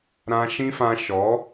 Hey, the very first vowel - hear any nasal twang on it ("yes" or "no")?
yes